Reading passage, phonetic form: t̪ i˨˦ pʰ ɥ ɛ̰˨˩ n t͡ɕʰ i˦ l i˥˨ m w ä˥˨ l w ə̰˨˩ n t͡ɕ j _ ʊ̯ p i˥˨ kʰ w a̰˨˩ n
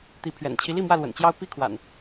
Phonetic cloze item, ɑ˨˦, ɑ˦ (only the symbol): ɑ˦